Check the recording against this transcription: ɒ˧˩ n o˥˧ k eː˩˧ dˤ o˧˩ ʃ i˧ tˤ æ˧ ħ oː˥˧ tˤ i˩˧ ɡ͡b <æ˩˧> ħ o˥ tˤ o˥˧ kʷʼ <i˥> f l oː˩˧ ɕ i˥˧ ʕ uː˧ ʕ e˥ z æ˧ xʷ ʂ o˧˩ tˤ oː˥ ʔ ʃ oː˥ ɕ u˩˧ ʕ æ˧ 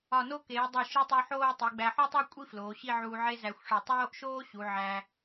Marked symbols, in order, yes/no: no, yes

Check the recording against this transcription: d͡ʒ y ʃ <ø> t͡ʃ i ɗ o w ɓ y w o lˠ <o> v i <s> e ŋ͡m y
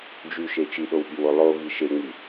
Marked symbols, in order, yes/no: no, yes, no

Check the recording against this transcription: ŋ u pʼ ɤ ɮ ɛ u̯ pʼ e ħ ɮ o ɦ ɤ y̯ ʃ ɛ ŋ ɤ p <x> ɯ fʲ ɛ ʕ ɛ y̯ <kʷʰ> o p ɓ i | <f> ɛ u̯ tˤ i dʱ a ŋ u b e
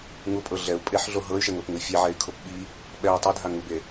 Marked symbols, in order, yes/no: no, no, no

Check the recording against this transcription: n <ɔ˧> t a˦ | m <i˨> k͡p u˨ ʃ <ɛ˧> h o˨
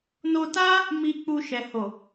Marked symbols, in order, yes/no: no, yes, no

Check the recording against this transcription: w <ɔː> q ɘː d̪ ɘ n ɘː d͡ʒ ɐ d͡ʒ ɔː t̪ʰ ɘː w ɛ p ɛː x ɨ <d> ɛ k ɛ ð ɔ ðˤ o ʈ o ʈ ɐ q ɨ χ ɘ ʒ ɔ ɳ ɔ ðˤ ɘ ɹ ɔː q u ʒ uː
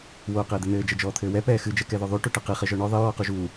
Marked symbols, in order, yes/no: no, no

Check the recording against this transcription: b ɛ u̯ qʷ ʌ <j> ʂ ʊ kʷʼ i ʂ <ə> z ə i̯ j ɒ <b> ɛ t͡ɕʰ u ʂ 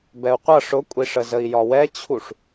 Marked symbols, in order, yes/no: no, yes, no

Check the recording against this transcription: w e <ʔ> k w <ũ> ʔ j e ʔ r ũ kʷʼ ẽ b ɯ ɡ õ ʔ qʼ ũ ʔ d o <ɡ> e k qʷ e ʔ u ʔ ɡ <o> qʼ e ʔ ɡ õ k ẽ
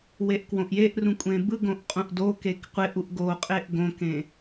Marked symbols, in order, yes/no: yes, no, no, yes

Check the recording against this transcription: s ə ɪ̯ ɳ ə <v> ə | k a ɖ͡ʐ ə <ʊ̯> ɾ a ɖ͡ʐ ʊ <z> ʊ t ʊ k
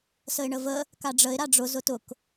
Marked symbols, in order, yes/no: yes, no, yes

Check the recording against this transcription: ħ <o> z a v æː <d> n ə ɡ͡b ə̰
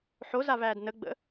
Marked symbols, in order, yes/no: yes, yes

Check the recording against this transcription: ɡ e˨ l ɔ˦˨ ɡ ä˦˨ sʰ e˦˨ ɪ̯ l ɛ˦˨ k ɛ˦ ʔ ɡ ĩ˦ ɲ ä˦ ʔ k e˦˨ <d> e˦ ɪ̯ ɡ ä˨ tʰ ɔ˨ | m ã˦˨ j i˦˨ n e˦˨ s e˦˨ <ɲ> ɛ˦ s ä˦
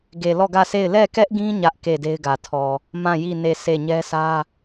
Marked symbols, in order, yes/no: yes, yes

